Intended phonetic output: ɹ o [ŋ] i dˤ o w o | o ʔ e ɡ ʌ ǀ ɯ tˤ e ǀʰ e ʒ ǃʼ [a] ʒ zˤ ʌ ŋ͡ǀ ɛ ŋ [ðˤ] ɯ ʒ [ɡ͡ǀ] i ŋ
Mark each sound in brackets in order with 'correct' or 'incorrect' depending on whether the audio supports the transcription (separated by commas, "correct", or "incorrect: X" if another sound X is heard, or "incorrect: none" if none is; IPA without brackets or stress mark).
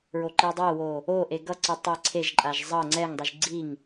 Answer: incorrect: ǃ, correct, incorrect: dˤ, correct